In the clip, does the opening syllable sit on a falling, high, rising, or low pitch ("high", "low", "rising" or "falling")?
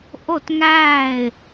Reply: falling